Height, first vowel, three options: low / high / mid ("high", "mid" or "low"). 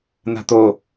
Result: low